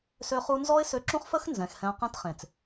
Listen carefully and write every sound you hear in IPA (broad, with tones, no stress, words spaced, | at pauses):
sø˦χu˦ nzɔ˦ɪ̯sø˧ǁũ˦χfə˦x nzɛ̃˨xhɛ̃˧ qɛ̃˦tχẽ˨t͡s